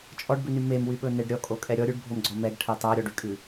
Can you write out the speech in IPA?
t͡ʃʼ ɔ ɖ b ʉ n y m e m w y ɓ ɵ n e ɖ ɾʲ ɔ kʼ o kʼ ɛ ɾʲ ɔ ɾʲ ʉ ɖ bʱ o m ɡ͡ǀ ɔ m ɛ ɡ ʈʰ ɛ tˤ æ ɾʲ ɔ ɖ y kʼ ʉ

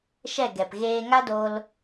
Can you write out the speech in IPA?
ʃ ɛ˦˨ ɡ ɛ˨ p ɣ eː˧ ŋ a˦ d o˧ l

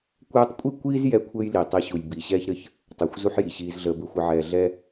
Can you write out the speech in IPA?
kʷ ɛː˦ tˤ kʷʼ i˥ kʷ iː˥ z j ɛ˥ kʷʰ ɘː˥ j l i˩ tˤ i˨ ɕ u˩ j b i˩ ɕ ɛː˦ ç ɾ ɘ˨ ç | tˤ əː˩ xʷ z u˥ ħ j i˩ ɕ iː˨ z ɮ əː˨ b ɘ˨ xʷ ɘ˨ ʕ ɛː˨ ɮ ɛ˥

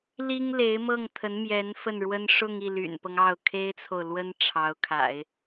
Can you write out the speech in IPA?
l i˥ ŋ l e˧˥ ɪ̯ m ɤ˥˩ ŋ t̪ʰ ə˧˥ n m j ɛ˧˥ n f ə˥˩ n ɻ w ə˥ n ʂ ʊ˥˧ ŋ i˥˩ l y̰˨˩ n p ɤ˦ ŋ ɑ˥˩ ʊ̯ kʰ e˥ ɪ̯ t͡sʰ o˨ ʊ̯ l w ə˥ n ʈ͡ʂʰ ɑ˧˥ ʊ̯ kʰ a̰˨˩˦ ɪ̯

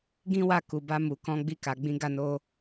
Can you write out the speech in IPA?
ɡ ĩ˦ w a˦˨ k u˨ b a˧ m u˨ k ɔ̃˨˦ ɡ͡b i˧ k a˨ ɡ͡b ĩ˧ ɡ a˧ n o˧

